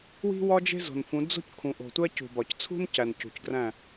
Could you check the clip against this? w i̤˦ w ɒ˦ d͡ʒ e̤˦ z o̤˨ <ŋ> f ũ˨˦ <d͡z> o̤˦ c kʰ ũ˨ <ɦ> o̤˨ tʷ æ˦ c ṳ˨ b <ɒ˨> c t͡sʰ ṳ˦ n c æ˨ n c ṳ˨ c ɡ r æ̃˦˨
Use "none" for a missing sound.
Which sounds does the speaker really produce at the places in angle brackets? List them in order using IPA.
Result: n, d͡z, ʔ, ɒ˨

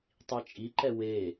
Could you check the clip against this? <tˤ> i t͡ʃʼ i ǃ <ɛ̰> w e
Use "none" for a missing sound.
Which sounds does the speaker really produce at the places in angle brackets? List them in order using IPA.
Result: tˤ, ɛ

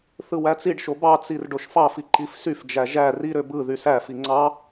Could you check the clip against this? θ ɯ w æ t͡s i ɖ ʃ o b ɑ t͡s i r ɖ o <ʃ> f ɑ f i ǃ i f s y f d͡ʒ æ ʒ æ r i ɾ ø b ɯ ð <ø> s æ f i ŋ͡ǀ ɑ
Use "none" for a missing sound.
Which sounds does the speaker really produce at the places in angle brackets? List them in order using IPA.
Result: ʃ, y

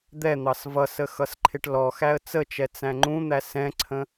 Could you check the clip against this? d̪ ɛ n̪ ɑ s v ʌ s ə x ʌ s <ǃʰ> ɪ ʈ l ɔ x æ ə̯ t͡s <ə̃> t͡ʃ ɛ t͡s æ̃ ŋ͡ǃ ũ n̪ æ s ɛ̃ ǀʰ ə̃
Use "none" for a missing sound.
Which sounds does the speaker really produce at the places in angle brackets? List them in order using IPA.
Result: ǃʰ, ə

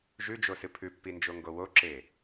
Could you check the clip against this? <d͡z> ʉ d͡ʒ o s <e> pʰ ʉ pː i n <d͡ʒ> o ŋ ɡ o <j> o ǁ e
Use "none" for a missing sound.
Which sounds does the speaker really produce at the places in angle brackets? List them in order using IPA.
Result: ʒ, ɨ, d͡ʒ, w

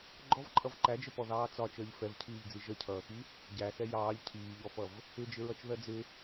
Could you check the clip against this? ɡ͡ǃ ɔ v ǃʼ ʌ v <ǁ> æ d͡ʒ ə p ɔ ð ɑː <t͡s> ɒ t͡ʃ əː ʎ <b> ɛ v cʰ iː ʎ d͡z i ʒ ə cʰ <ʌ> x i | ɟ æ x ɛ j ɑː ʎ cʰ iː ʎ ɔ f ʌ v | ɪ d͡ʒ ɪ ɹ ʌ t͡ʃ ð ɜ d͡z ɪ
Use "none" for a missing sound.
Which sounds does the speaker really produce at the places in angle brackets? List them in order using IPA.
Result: ǃ, t͡s, f, ʌː

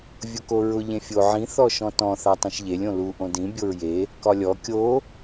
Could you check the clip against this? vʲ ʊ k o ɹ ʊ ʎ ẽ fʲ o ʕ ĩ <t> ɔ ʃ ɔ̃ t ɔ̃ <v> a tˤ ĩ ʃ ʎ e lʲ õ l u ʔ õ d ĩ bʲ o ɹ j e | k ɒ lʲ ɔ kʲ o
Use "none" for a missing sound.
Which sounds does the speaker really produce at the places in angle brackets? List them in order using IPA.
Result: θ, θ

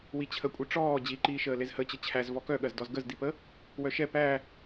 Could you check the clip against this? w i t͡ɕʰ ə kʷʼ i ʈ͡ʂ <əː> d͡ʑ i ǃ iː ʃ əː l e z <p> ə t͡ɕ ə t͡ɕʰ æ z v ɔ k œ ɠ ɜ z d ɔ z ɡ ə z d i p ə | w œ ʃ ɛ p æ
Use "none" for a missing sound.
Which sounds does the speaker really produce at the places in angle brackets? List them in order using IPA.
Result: ɔː, h

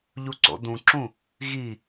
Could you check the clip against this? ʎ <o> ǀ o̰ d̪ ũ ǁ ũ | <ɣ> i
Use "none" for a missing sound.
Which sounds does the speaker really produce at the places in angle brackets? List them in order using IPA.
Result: u, ɣ

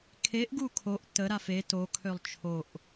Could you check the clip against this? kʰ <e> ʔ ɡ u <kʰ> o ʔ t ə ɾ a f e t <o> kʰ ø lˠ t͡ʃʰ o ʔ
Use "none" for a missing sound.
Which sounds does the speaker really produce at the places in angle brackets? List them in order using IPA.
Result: e, kʰ, o

